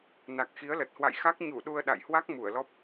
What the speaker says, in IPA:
n a˨˩ k̚ x i˨˦ ə̯ l ə˨˩ t̚ h w a̰˧˨ j x a˦˥ k̚ ɲ u˧˩ ɗ u˧ ə̯ ɗ a̰˧˨ j h w a˦˥ k̚ m u˧˩ ə̯ l ɔ˦˥ p̚

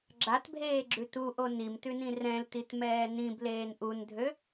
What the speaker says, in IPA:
ɡ͡ǁ a t bʱ eː ɡ͡ǁ ʉ t u ʔ o n i m t ʉ n ĩ r ɛ̃ l t i t m ɛː n ĩ b l eː n ʔ u n dʱ ø

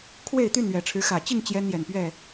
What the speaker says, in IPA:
kʰ w e˥˨ ɪ̯ t̪ y˥˨ n ɥ ɛ˨˩ ʈ͡ʂʰ ɻ̩˨˦ x ä˨˩ t͡ɕ i˥˨ ŋ t͡ɕ j ɛ˦ n j ɛ˨˩ n p ɥ ɛ˥˨

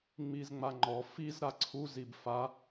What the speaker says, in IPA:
ŋ͡m i z ŋ͡m a ŋ͡ǃ ɔ f i z ɾ a ǀʰ u z i b f a

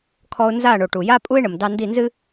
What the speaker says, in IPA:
kʰ ɔ˧ ʊ̯ n z a˦˨ ɳ o˨ ʈ u˨ j a˦ pʼ u˦ ɪ̯ ɳ ə˨ m d ɑ˧ n d i˦˨ n z ɨ˦

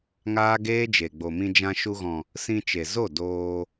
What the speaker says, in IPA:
ŋ aː˦ ɡ eː˦ d͡ʒ e˨ ɡ͡b o˨ m ĩ˧ d͡ʒ ã˧ ʃ u˧ ɣ ɔ̃˨ | s ĩ˧ t͡ʃ e˨ z o˦˨ d oː˧

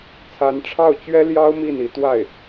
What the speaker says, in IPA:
t͡sʰ a˧˥ n ʈ͡ʂʰ ɑ˥˩ ʊ̯ t͡ɕ ɥ ɛ˥ l j ɑ˥ ʊ̯ m i˥˩ n i˧˥ t̪ w a˥˩ ɪ̯

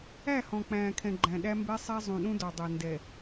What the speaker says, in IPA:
æ˦˨ h ɔ̃˨ k͡p æ̃ː˨ kʰ ɛ̃˨ ɡ͡ǃ æ̃˨ ɗ æ˦ m b ɛ˦ sˤ æ˦ zˤ ũ˨ ɗ ũ˦ d ɔ˨ dˤ ɛ˨ n d ɛ˨

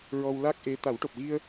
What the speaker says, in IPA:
ɹ ɔ˧ w l a˦˥ k̚ ʔ e˧˥ t̪ a˨˩˦ w ʈ o˨˩ p̚ ɣ i˧ ə̯

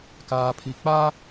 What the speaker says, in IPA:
k aː˨ pʰ i˨ k͡p a˦

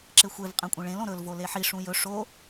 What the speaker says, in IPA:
ǁ e xʷ e v qʼ ẽ kʷʼ ĩ ɭ ẽ l õ ɾ ɵ l v o l e ħ i ʂ ũ j ɵ ʂ o

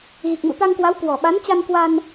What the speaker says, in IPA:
ɣ i˨˩ k̚ m ṵ˧˨ t̪ a˧ ŋ k w a˨˦ w k w ɔ˨˩ ɓ a˨˦ n t͡ɕ a˧ n k w a˧ n

